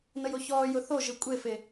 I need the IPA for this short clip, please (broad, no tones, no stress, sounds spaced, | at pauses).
n ə j o ç ɔː j ʊ θ o ʒ ɨ kʷʼ e f e